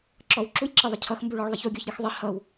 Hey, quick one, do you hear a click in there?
yes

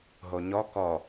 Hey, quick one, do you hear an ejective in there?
no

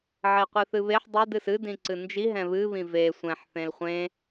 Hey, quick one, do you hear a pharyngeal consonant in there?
yes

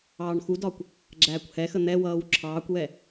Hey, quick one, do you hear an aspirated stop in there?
yes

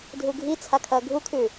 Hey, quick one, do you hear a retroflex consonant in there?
no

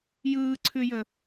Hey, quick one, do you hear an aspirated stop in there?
yes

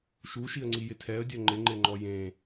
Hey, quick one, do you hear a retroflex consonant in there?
no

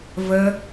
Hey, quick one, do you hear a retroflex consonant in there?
no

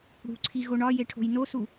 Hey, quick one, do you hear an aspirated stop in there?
yes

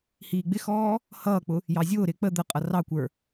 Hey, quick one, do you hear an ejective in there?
yes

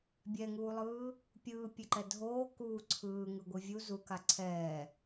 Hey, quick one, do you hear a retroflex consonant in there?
no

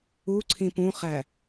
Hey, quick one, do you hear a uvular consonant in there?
yes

